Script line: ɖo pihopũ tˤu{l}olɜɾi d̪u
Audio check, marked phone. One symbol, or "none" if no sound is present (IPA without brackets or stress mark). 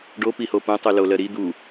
l